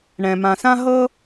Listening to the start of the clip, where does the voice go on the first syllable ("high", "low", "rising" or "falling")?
low